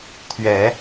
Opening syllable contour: rising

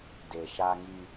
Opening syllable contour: low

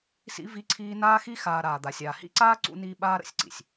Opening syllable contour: high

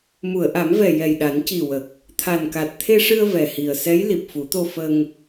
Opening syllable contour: low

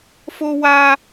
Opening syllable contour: high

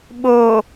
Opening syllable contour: low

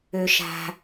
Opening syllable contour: high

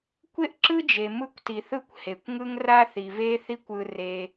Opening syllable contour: high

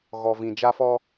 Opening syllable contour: low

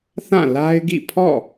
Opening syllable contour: falling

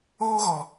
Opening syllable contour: high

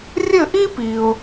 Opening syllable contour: falling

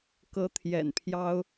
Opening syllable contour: rising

